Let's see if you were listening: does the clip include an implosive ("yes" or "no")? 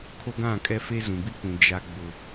no